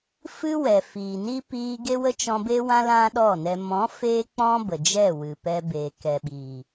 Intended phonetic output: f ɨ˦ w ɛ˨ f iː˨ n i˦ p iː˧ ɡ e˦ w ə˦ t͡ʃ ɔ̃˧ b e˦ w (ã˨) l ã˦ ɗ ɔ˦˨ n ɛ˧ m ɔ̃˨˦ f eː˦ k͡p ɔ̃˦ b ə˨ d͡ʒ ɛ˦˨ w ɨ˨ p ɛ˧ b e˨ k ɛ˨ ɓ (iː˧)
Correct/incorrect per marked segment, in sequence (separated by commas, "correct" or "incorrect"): incorrect, incorrect